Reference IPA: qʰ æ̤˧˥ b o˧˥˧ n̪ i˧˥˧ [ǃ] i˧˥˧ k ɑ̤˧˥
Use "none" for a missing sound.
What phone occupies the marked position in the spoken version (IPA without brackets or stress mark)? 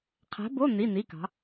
n̪